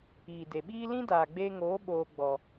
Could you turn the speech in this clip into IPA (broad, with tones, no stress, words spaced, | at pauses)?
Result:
iː˨ de˨ɓiː˦ lĩ˦daː˨ɡ͡beː˧ŋoː˨˦ ɓoː˧ ɡ͡bɔ˨